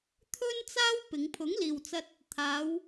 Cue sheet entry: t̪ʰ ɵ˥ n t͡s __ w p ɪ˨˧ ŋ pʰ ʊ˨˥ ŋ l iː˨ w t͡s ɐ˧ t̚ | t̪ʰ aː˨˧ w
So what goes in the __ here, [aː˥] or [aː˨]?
aː˥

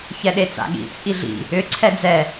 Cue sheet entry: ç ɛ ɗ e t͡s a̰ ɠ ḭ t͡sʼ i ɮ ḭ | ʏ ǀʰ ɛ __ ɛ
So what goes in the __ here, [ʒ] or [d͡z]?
d͡z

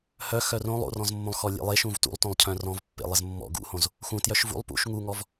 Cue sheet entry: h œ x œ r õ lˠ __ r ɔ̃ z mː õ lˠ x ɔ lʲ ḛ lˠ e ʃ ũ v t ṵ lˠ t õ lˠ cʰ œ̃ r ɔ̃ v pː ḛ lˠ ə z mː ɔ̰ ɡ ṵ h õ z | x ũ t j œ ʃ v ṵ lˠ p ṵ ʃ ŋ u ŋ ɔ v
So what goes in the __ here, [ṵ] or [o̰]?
o̰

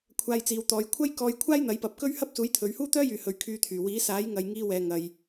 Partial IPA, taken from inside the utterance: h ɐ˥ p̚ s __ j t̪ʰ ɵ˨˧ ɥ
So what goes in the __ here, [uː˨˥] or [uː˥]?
uː˨˥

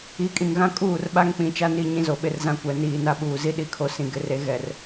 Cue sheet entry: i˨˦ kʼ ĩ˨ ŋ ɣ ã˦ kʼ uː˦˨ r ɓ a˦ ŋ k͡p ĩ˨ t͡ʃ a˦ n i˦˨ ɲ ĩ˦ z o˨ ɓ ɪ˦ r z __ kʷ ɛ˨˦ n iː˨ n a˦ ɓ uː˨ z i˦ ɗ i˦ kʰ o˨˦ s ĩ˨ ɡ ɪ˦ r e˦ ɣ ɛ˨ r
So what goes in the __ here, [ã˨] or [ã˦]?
ã˦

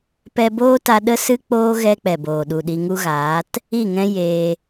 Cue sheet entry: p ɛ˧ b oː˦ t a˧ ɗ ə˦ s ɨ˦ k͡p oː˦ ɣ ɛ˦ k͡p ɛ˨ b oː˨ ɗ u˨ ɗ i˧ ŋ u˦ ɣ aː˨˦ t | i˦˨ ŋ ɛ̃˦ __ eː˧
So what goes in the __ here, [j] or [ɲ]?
j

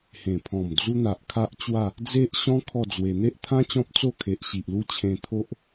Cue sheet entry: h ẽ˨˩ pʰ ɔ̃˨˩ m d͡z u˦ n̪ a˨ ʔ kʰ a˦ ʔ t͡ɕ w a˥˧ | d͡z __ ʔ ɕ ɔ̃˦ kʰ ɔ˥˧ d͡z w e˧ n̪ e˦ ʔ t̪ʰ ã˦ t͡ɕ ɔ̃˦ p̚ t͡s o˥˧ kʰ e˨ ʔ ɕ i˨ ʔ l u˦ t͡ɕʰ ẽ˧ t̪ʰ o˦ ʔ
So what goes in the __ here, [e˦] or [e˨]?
e˦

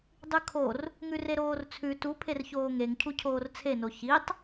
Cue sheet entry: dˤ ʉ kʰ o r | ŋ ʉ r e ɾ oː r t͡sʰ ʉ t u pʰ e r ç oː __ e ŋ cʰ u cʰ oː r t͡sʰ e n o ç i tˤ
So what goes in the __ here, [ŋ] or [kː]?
ŋ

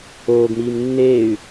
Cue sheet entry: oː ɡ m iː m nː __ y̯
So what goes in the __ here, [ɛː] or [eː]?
eː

